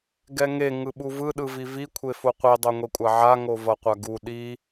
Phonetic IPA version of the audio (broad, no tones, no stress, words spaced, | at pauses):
ɡɛŋe ŋɯɓuvɯ ɗɯvivi kʷʰefoqʷi dˤoŋʷekʷʼaʕa ŋovʌqʷaɡu ɗi